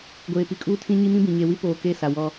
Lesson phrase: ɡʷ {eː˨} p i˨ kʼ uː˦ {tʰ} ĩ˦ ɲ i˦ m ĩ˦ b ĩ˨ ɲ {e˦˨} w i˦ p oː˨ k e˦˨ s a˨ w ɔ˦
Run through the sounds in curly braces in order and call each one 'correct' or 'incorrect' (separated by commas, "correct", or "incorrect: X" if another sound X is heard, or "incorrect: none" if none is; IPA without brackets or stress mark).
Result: correct, correct, incorrect: e˨